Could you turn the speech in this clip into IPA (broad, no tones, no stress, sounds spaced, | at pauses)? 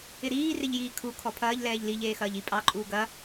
ɪ ɾ iː r ɪ ʎ j iː kʰ u kʰ ɔ pʰ ɐː ʎ l ɛː ʎ l i ʎ eː x ɐː ʎ i pʼ ɑ ǃʼ uː ɡ ɐ